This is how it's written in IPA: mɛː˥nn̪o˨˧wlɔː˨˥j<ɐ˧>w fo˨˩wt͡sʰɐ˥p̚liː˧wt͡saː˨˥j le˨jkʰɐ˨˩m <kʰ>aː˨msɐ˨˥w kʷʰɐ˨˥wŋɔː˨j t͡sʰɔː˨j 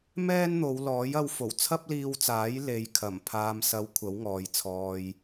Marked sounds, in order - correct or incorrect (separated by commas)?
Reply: correct, incorrect